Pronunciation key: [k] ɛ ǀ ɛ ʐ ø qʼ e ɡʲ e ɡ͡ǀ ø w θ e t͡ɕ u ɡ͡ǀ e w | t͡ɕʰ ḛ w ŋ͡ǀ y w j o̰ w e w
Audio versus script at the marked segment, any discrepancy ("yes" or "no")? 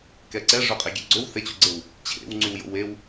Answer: no